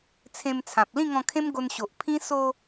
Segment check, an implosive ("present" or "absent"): absent